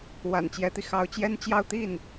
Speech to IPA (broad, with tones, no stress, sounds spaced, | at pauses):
w a̰˨˩ n t͡ɕ j ɛ˧˥ t̪ i˧ x ɑ˧˥ ʊ̯ t͡ɕ j ɛ˥ n t͡ɕ j ɑ˥˧ ʊ̯ t̪ i˥˩ n